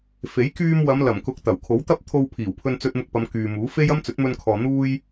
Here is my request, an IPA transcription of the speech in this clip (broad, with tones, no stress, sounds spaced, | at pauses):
f e˨˥ j k yː˧ m w ɐ˨˧ m l ɐ˨˩ m k ʊ˨˥ k̚ t̪ ɐ˨˩ w kʰ o˨˥ w t̪ ɐ˥ p̚ t̪ʰ o˧ w pʰ iː˨˩ w pʰ ɵ˧ n t͡s ɵ˧ t̚ m ʊ˧ k̚ p ɐ˨˧ m k yː˨ m uː˨˥ f e˥ j ɐ˥ m t͡s ɵ˨˥ t̚ m ɵ˧ n kʰ ɔː˨ n̪ uː˥ j